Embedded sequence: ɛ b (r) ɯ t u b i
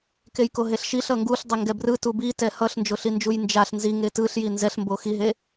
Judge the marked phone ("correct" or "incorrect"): correct